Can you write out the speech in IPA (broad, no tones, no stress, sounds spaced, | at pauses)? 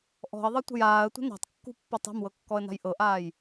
ʔ ɔ̤ ə̯ ðˤ ɤ tʷ ə̤ j aː ə̯ tʷ ə̤ n a̤ tˤ kː ṳ pː ɔ tˤ a̤ m w ɤ kː ɔ ə̯ n a̤ j ʔ ɤ ʔ aː j